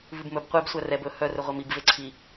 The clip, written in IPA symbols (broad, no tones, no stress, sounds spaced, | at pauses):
v ʉ b m ɵ b qʷ e b sʷ æ r ɛ b ɵ h œ r ɵ ʁʷ ɛ m i b v e ǀʰ i